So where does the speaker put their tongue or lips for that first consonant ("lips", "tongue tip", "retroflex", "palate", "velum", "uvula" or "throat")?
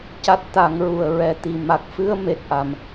palate